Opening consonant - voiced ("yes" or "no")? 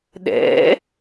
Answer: yes